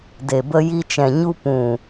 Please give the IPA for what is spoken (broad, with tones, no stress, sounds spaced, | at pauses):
d e˨ b ə˧ j i˧ t͡ʃ ɛ̃˨ ɲ u˧ p ũ˨